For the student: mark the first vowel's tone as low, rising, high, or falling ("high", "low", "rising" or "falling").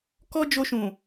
high